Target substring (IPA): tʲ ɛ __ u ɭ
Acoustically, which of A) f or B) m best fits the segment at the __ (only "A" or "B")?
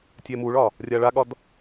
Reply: B